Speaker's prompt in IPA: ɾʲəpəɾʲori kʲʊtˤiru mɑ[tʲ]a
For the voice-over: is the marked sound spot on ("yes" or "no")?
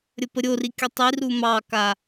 no